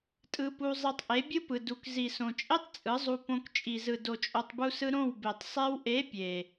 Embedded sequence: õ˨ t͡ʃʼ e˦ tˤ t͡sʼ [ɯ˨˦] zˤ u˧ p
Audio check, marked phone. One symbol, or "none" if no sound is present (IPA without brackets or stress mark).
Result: ɯ˨˦